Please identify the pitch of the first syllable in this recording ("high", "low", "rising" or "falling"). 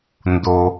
low